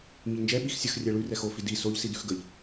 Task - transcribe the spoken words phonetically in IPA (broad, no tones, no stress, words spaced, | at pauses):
ŋiʎnd͡ʒɛ ɓixsʲəx rʲɛɭʉ rɛxo fidi soʎ sidʉxɡəʎ